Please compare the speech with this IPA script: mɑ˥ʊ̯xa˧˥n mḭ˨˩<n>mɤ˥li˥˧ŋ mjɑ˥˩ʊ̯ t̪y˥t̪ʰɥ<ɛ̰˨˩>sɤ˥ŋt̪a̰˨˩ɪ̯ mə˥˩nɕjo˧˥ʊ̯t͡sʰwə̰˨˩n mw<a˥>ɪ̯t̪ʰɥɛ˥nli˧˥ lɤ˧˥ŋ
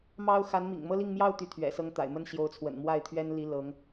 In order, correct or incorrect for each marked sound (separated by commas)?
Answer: incorrect, correct, incorrect